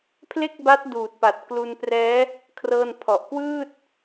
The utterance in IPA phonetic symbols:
pʰ l e˥˩ k̚ b a˦˥ t̚ d uː˨˩ t̚ p a˨˩ t̚ k l u˧ n p r ɛː˦˥ | kʰ r ɤː˥˩ n pʰ ɔ˨˩ ʔ k w ɯː˥˩ t̚

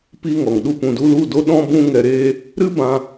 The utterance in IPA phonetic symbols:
p iː˦ ŋ ɔ˨ ŋ ɗ u˦ p ũ˨ d u˧ l u˦˨ d o˦ ɗ ɔ̃˦ b ũ˦ ŋ ɛ˧ ɾ eː˦ | ɾ ɨ˦ b ã˧

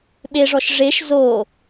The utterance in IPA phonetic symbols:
ɓ e ʐ ɔ ʃ ʐ e ʃ z o

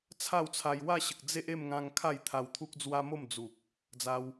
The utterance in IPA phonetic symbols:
t͡sʰ a˥˧ w t͡sʰ a˧ j w a˥˧ ɕ ə˨ k̚ d͡z e˦ ʔ e˥˧ m ŋ ã˧ ŋ kʰ a˥˧ j t̪ʰ a˧ w t̪ʰ u˦ k̚ d͡z w a˦ m o˥˧ m d͡z u˨ k̚ | d͡z a˦ w

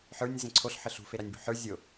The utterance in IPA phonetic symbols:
ħ ə˞ nʲ z ẽ ǀʰ o ɬ ħ ə ɬ ṳ f e ɾ a nʲ b o̤ ħ ə˞ zʲ o

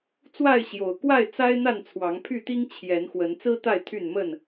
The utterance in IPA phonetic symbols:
t͡s w a˥˨ ɪ̯ ɕ j o˨˩ ʊ̯ k w a˥˨ ɪ̯ t͡s a˦ ɪ̯ n̪ a˥˨ n t͡sʰ w ɑ˨˦ ŋ pʰ y˥˨ t̪ i˦ ŋ t͡ɕʰ j ɛ˨˦ n x w ə˨˦ n t͡s ɹ̩˦ t̪ a˥˨ ɪ̯ t̪ʰ y˥˨ n m ə˥˨ n

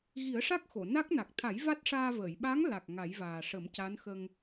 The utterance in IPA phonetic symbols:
ɣ i˨˩˦ ə̯ ʂ a˦˥ k̚ x o˨˩˨ n a˦˥ k̚ n a˨˩ k̚ t̪ʰ a˨˩˦ j v a˦˥ t̚ ʂ aː˧ v əː˨˩˨ j ɓ a˧˥ ŋ l a˨˩ k̚ ŋ a˨˩˦ j v aː˨˩ ʂ ə˨˩˦ m c a˧˥ n x ə˧ ŋ

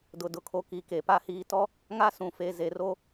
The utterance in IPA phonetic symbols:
d ʊ˨ d ʊ˨ kʰ o˨ k i˨ k e˨ p a˦ h iː˨ t ɔ˦ | ŋ a˦ s ũ˨ f e˨ z e˨ r o˦

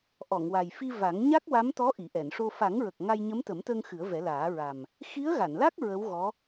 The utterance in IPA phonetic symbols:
ʔ ɔ˨˩˨ ŋ w a˨˩ j f i˧ v a˨˩˦ ŋ ɲ a˦˥ k̚ w a˧˥ m t̪ ɔ˧˥ ʔ i˨˩˨ ʔ ɛ˨˩˨ n ʂ o˧ f a˨˩˦ ŋ ɹ ə˨˩ k̚ ŋ a˧ j ɲ ə˧˥ m t̪ ə˨˩˦ m t̪ əː˧ ŋ x ɨ˨˩˦ ə̯ v ɛ˨˩˦ l aː˨˩˦ ɹ a˨˩ m | x i˧˥ ə̯ ɣ a˨˩˨ n l a˦˥ k̚ ɹ ə˧˥ w ɣ ɔ˧˥

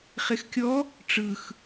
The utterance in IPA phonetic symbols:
χ e x kʲ ɔ | ʈ͡ʂ ɯ x

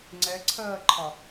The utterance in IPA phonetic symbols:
ŋ͡ǀ ɛ ǀʰ ɜː ǃʰ ɒ

